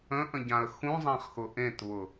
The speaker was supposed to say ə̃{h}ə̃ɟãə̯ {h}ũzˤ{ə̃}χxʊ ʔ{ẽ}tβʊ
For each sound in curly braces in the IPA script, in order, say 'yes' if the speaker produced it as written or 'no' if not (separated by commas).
no, no, no, yes